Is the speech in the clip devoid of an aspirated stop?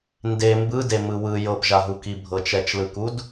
yes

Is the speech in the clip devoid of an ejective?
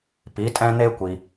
no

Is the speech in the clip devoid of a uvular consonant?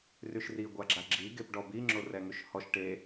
yes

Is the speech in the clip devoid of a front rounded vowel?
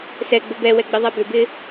no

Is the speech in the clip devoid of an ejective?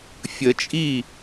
no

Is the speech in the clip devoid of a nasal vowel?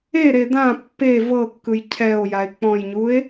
no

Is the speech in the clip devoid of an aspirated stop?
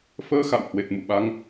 yes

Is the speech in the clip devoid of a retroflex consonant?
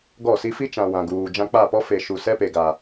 yes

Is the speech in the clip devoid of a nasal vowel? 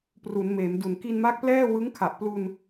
yes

